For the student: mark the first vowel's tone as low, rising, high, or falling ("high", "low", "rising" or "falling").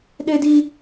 high